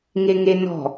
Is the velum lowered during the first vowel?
no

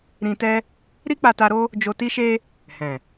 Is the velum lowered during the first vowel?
yes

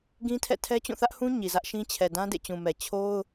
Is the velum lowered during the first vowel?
yes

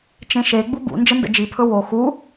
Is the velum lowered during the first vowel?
yes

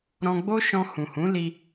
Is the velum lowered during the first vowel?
yes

